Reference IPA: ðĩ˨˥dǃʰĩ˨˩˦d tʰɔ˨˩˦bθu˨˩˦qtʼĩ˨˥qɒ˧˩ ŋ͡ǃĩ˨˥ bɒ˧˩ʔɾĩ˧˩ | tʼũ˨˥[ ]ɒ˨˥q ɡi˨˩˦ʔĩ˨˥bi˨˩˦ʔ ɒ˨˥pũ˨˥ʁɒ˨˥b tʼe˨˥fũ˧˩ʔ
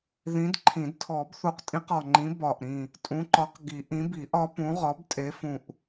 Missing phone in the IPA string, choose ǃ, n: ǃ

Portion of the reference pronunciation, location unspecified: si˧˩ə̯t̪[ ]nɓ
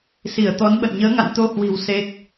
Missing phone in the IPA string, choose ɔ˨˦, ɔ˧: ɔ˨˦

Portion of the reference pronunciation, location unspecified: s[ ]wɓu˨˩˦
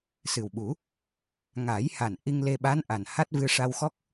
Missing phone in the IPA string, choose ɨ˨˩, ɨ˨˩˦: ɨ˨˩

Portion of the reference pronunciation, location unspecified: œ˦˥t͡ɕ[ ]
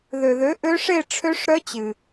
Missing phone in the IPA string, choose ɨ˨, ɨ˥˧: ɨ˨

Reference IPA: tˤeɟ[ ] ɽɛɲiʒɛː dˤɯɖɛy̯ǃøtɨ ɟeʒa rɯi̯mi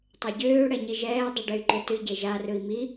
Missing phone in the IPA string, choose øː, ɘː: øː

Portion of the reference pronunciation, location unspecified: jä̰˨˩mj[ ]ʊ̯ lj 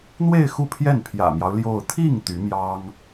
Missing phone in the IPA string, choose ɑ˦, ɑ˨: ɑ˦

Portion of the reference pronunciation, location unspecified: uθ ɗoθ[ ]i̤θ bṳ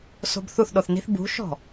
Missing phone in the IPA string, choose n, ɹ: n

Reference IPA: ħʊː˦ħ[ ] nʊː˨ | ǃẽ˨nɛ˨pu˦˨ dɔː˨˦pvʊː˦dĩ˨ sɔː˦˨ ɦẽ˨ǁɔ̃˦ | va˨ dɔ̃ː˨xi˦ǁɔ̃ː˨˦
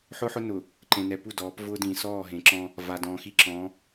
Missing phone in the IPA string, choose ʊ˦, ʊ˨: ʊ˦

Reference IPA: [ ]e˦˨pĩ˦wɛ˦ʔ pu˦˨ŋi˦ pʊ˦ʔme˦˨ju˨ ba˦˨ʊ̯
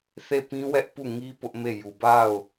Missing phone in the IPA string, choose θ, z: θ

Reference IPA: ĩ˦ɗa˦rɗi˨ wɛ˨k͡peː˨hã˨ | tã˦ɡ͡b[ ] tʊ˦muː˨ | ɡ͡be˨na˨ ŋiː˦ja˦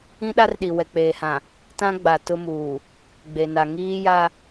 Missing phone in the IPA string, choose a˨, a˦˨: a˨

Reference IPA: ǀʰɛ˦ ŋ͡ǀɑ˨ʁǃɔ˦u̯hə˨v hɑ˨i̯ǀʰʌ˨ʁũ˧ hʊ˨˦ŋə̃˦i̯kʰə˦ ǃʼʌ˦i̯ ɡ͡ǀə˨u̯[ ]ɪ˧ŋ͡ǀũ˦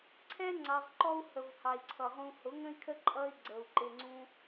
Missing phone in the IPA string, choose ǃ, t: ǃ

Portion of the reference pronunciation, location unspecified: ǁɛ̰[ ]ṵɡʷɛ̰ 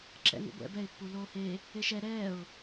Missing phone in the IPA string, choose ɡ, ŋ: ŋ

